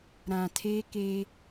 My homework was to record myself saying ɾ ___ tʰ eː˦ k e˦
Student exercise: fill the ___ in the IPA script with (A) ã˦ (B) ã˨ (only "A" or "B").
B